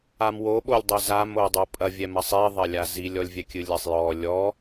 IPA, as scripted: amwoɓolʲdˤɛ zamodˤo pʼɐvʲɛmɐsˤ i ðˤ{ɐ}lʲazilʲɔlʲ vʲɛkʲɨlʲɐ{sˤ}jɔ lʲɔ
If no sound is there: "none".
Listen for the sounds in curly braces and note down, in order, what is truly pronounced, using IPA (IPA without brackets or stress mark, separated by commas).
ɐ, sˤ